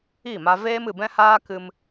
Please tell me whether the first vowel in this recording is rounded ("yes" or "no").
no